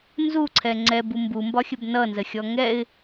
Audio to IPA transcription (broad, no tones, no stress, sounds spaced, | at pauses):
n z u ǀʰ ɛ ŋ͡ǀ ɛ b u m b u m b ɒ xʲ ə b n ʌ n z ə xʲ ɔ ŋ ɛ ɪ̯